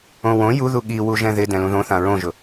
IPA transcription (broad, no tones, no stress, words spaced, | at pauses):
õwõ juðu ɠi wuʒɛ̃ðɪ dɛ̃lũðõθã ɹõʒʊ